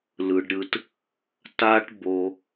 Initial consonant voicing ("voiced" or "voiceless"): voiced